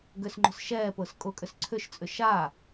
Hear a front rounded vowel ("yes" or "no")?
yes